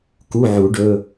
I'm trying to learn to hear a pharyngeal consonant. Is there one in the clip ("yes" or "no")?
yes